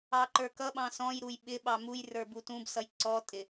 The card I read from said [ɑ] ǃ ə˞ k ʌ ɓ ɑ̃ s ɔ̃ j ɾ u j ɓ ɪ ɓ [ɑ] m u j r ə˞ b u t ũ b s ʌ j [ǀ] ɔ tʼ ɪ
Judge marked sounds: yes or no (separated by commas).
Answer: yes, yes, yes